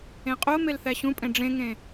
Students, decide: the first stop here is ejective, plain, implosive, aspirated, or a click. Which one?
ejective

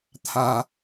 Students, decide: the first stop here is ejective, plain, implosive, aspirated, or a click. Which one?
aspirated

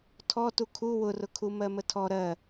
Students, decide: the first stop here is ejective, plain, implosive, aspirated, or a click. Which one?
aspirated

